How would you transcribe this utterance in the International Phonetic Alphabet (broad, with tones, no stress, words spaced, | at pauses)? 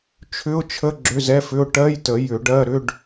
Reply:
t͡ʃʰʏ˧˥˧ʊ̯t͡ʃʰə˧˥˧ ɡ͡ǁʏ˧˥˧zɛ˧˥˧fʏ˧˥˧ʊ̯ ʈɜ˧˥˧jtə˨˩˦ jʏ˨˩˦ɖɜ˧˥˧ɾʏ˧˥˧ɖ